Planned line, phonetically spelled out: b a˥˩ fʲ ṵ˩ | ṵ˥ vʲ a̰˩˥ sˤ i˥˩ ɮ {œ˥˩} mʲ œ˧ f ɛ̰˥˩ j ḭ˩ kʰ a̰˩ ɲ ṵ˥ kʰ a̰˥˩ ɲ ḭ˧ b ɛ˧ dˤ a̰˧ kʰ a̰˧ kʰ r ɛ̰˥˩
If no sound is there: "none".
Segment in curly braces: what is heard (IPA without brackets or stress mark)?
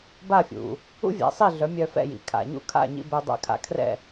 œ˩˥